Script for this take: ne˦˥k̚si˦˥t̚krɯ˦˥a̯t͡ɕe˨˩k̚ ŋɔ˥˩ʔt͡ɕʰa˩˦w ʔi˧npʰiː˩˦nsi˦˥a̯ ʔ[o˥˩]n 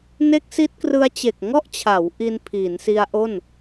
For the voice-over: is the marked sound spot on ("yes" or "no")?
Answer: yes